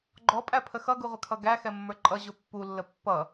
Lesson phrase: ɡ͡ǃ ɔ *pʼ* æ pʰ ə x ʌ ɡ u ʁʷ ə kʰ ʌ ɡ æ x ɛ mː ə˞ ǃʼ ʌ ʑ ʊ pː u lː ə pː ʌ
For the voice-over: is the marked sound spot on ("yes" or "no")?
yes